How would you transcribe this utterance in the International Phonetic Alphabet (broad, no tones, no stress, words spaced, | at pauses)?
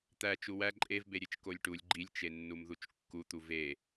t̪æ t͡ʃuwæ ǃʼevbeɾʲet͡ʃ kolʲʈulʲ ɡ͡ǃilʲt͡ʃenːum ðut͡ʃkːut̪u ve